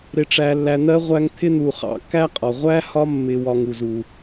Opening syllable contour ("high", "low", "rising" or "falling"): low